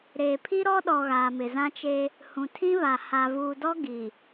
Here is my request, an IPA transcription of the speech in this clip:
ɾ eː˨ pʰ i˦ ɾ ɔ˦ ɗ ɔ˨ ɣ aː˨ m ɪ˨ z ã˦ t͡ʃ e˦ | h ũ˨ tʰ ĩ˦ β a˨ h a˨ v uː˨ d ɔ˦ ɡ i˨

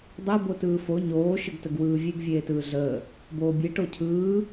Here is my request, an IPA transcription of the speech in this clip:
dˤ e b o t ɯː f o ɲ oː ʃ ə ɡ t ə ɡ w ɯː vʲ e ɡ vʲ eː t ɯː ɮ əː | b oː bʲ e ʈ o cʰ ɯː

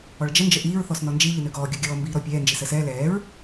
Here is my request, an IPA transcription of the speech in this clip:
ɔ ɭ d͡ʒ ə n d͡ʒ ə ʔ iː ɹ θ ɔ s n ɔ n d͡ʒ i ʎ i n ø ɡ ɔː ɡʲ ɔ ɡʲ ɔː m b iː ɾ ɔ pʲ ɛː n d͡ʒ i s əː s ɛː l ɛː ɹ

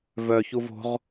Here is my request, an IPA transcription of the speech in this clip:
v œ ç u v o̤ ʁ

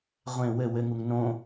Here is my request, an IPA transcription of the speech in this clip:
ʁʷ ẽ w ɘ w ɘ ŋ u ŋ n õ

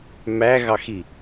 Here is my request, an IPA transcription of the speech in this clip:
m æ ɣ ɑ x i

